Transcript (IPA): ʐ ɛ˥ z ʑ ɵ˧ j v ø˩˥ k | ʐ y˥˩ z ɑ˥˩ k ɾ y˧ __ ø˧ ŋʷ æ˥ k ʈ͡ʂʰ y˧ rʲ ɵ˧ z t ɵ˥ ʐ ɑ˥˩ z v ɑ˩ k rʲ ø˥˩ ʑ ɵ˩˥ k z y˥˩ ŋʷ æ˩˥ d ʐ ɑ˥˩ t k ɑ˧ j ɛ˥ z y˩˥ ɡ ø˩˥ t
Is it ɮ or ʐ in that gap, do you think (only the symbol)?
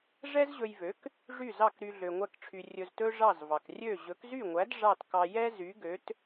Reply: ɮ